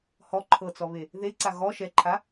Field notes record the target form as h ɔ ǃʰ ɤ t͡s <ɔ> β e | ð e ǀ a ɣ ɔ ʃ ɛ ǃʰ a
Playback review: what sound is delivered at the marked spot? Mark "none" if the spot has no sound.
ɔ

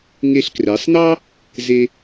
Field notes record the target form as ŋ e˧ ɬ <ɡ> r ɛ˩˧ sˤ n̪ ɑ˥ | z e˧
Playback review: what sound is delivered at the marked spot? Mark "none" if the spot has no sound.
k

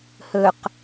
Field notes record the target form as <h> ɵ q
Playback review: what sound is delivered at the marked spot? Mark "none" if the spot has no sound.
h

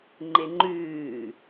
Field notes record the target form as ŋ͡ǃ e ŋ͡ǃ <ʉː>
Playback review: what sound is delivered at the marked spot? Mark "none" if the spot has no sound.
ʉː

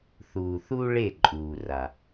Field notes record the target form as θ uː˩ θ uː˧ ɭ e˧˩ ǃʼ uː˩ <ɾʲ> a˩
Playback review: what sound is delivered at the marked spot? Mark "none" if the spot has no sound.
r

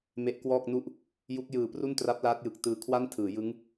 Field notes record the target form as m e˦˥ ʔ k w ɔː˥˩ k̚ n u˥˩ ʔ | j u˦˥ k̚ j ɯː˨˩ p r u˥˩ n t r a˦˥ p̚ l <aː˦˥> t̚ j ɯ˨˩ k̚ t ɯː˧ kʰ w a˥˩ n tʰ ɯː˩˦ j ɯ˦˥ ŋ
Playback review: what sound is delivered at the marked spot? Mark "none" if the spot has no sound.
aː˦˥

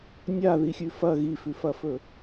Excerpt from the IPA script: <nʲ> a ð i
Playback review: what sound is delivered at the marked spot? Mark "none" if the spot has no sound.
nʲ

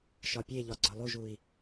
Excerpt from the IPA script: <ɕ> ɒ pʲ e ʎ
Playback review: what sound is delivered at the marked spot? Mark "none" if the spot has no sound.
ʃ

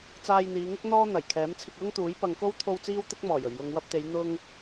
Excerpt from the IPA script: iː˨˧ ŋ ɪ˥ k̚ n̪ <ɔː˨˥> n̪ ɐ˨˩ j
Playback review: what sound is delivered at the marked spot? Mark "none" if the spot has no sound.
ɔː˥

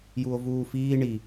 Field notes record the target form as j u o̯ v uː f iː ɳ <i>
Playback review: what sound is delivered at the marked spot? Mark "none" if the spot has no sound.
i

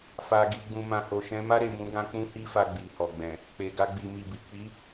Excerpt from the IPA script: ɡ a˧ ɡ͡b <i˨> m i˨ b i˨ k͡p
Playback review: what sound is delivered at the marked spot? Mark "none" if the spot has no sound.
i˨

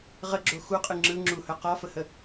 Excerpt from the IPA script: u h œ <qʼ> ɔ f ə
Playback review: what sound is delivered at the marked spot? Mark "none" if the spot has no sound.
q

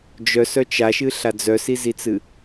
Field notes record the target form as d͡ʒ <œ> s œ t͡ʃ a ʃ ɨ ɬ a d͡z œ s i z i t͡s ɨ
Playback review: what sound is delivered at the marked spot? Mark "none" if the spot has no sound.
œ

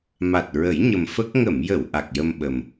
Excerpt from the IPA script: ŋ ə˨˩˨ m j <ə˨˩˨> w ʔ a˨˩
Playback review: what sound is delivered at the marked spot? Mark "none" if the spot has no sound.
ə˨˩˨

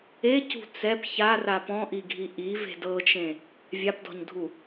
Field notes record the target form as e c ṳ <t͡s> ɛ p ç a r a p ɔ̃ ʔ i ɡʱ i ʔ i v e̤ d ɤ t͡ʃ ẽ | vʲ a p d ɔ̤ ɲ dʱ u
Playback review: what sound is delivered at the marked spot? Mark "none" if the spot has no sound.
t͡s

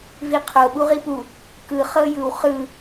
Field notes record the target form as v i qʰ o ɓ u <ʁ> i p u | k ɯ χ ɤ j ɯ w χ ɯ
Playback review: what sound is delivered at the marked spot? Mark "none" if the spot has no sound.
ʁ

